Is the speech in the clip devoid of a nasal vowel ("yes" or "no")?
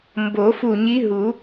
yes